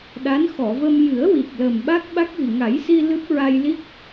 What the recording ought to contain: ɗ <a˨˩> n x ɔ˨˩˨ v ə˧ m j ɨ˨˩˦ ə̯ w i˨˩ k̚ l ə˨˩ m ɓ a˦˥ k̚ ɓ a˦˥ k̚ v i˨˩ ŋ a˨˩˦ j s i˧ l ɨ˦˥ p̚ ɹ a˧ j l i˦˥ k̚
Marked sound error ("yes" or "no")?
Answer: yes